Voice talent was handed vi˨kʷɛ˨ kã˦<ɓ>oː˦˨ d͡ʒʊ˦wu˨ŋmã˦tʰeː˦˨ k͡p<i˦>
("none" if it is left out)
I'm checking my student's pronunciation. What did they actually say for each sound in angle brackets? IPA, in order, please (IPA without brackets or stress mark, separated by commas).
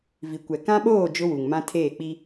ɓ, i˦